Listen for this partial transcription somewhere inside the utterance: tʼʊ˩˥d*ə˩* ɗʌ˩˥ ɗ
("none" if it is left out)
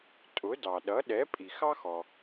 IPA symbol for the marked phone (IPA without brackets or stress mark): ɑ˩